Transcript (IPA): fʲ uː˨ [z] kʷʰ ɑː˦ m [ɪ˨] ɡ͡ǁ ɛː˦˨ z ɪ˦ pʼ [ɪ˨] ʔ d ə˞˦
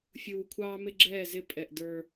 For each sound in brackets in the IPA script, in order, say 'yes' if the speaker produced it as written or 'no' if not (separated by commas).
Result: no, no, no